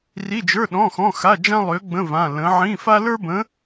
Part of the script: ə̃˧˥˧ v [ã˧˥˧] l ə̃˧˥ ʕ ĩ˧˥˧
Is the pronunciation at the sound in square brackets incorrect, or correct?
correct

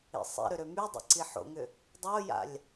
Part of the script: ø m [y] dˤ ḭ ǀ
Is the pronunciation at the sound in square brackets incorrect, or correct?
correct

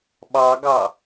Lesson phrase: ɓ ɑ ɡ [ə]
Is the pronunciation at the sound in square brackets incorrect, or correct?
incorrect: ɑ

